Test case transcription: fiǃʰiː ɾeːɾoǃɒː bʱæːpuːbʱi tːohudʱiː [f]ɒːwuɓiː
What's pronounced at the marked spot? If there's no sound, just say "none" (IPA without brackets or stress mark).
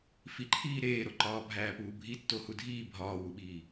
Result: bʱ